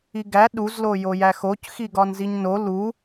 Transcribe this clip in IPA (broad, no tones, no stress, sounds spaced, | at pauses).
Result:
i ɡ æ ɗ u z l o j o j æ x o c x i ɡ ɒ n z i ɲ n o l u